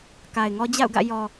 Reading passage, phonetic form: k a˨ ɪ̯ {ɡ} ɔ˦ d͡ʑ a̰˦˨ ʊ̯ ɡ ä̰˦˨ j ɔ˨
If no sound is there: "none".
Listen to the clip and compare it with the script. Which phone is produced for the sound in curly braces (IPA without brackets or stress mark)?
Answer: ŋ